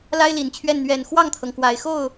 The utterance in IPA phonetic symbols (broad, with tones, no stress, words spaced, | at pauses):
la˥ɪ̯li˨˩nt͡ɕʰɥɛ˥˩n n̪ɥɛ˨˩n xwɑ˥˩ŋt̪ʰɤ˩ŋ kwa˨˩ɪ̯ xo˥˩ʊ̯